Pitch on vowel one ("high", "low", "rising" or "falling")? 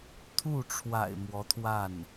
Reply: falling